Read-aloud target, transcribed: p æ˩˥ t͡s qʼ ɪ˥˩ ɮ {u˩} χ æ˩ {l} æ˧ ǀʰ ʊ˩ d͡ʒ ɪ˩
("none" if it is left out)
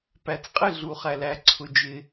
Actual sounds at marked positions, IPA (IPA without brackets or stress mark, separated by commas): u˩, l